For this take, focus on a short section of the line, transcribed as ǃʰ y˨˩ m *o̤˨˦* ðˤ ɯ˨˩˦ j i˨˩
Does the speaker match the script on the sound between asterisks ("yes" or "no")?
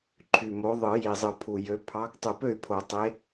no